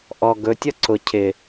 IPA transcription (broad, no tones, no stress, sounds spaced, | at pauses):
ʔ ɔ ɡ ɵ tʲ ʌ ǀ ʊ cʰ ɪ